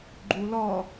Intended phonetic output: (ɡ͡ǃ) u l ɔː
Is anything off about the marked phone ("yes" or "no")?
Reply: no